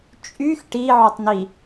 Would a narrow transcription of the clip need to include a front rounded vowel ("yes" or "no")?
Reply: yes